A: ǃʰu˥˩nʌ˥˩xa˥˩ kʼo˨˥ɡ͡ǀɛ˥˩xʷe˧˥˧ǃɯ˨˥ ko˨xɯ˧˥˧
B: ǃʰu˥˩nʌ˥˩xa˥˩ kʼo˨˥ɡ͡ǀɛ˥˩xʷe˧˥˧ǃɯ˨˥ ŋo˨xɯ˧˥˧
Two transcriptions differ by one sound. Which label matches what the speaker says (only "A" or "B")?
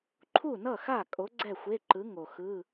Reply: B